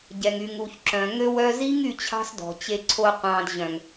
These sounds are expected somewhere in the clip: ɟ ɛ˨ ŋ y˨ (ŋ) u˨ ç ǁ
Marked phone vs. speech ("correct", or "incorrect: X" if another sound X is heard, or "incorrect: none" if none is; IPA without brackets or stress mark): correct